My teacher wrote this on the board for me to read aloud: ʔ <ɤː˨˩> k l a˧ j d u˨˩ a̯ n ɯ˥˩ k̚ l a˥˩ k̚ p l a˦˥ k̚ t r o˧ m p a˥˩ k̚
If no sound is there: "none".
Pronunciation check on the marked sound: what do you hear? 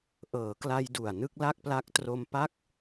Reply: ɤː˩˦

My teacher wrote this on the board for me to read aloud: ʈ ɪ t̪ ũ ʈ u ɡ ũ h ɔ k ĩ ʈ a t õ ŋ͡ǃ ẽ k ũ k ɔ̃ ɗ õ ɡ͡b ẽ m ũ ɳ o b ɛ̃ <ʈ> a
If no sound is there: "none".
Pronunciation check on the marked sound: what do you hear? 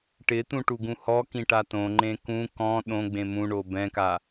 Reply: k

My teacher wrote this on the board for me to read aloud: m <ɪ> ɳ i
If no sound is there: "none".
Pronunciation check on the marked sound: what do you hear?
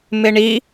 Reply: ɪ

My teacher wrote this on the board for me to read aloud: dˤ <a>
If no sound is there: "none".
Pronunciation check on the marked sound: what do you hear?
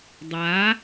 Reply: a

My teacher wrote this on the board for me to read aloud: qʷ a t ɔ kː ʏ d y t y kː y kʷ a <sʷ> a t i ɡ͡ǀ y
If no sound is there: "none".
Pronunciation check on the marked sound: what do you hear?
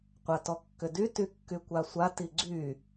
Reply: sʷ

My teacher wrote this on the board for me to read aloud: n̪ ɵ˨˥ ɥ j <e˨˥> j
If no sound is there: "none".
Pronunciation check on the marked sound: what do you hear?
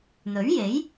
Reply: e˨˥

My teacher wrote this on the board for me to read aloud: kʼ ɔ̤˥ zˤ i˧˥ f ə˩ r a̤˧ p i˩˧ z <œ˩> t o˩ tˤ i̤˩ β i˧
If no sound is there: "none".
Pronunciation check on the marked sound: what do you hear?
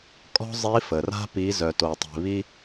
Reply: œ˩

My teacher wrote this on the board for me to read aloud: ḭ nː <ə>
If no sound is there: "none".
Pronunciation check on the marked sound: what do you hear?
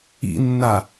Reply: a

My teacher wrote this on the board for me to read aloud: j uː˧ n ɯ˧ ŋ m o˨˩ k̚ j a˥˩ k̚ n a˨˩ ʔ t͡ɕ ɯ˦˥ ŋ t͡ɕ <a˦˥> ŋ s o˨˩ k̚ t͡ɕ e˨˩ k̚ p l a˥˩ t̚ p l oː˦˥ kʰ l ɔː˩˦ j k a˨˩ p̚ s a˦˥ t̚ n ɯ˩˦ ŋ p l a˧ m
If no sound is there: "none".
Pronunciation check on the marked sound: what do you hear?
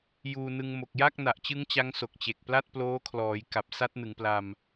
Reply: a˦˥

